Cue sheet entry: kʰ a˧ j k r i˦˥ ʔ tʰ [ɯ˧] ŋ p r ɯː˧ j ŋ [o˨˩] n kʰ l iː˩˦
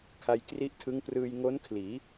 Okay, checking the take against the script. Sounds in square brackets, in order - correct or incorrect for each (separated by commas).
incorrect, incorrect